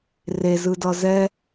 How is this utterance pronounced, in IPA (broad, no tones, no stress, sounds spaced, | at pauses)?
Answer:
r e z ɯ d ʌ z ɛ